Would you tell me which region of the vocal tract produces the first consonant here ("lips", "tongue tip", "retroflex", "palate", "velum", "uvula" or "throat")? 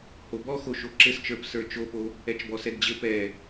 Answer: throat